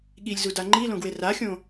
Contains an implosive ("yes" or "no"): yes